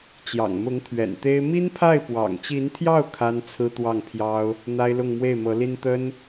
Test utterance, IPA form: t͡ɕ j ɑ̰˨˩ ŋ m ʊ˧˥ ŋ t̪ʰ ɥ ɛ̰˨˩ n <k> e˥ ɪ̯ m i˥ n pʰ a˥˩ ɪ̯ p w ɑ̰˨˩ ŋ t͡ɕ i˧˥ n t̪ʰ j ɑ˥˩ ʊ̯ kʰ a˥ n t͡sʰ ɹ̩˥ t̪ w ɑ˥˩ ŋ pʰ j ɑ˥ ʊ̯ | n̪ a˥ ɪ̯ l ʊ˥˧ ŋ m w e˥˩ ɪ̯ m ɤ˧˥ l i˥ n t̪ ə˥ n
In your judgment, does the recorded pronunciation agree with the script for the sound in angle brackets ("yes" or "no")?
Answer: no